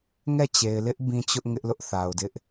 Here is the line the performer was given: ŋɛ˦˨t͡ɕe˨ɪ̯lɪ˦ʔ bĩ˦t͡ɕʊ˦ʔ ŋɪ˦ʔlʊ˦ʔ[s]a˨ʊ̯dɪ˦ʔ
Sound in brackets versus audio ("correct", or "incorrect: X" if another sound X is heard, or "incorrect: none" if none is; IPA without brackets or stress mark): incorrect: θ